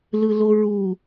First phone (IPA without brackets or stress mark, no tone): l